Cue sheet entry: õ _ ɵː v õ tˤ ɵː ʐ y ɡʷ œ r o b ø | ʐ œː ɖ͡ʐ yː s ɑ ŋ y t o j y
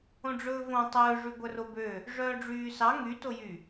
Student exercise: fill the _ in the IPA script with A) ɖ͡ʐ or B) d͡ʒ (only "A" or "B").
A